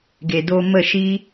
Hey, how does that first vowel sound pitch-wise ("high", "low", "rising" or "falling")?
low